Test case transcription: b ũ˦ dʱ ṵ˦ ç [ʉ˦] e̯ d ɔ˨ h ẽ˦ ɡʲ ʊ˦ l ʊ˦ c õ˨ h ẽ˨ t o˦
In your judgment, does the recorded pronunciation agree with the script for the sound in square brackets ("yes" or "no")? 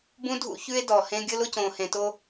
yes